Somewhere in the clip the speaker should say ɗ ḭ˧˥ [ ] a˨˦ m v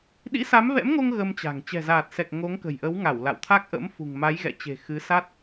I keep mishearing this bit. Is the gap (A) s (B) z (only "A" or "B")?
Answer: A